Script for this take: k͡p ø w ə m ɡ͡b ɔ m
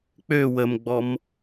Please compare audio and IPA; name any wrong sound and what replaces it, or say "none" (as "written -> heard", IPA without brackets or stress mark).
none